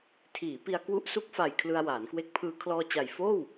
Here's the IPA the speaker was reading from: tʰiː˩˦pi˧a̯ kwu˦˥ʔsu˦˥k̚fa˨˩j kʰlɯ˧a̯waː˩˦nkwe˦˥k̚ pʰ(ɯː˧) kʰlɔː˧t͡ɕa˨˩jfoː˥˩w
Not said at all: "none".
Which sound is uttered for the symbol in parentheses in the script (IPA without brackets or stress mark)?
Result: ɯː˧